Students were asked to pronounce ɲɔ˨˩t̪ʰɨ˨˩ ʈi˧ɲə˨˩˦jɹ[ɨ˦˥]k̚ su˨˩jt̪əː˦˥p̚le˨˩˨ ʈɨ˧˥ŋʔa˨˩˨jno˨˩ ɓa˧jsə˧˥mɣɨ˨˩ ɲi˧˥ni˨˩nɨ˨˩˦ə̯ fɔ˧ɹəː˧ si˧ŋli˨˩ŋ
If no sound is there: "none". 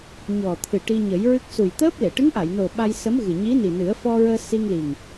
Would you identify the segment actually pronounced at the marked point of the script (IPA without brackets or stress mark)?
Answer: ɨ˦˥